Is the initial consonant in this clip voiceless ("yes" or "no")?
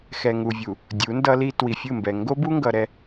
yes